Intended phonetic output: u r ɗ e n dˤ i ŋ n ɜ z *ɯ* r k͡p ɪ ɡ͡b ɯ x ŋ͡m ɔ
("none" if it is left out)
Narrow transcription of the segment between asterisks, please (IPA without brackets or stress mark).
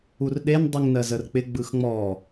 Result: ə